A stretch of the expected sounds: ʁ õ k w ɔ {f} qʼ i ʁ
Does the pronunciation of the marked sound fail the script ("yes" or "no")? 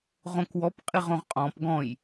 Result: yes